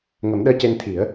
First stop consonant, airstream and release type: implosive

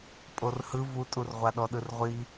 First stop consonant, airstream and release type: ejective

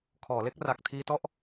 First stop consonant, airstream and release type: aspirated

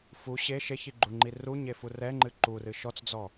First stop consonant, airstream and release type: click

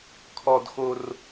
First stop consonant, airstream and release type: aspirated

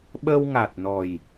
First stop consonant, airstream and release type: implosive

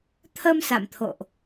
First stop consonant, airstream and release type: aspirated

